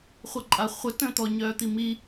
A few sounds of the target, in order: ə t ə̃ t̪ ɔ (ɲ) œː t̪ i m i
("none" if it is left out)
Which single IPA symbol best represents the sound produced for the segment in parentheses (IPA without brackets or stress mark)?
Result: ɲ